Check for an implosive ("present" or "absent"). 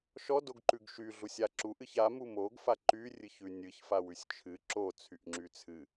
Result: absent